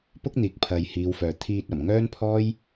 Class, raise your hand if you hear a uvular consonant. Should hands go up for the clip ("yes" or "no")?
no